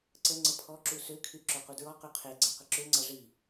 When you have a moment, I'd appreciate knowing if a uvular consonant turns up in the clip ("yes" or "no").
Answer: yes